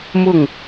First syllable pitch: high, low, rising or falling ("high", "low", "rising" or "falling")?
falling